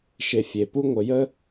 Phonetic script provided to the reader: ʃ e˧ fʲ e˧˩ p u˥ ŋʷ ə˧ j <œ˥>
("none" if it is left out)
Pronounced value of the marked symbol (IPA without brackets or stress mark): ə˥